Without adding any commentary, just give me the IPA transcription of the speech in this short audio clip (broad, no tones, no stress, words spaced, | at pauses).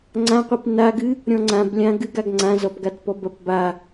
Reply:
ŋ͡ǀãqʷip naɡɨ | ɾʲɔ̃ŋ͡ǀãblʲã ɡɨɡaɡ ŋ͡ǀãzɔpɡatpɔb ɐpba